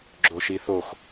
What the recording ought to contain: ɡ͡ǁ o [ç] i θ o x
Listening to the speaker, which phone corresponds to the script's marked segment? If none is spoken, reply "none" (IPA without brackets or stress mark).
ʃ